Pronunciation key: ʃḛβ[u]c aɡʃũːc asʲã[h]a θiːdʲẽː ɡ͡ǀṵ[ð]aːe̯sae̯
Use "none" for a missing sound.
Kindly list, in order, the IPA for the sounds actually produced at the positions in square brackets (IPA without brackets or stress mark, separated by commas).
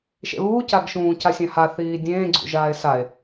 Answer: uː, h, ʒ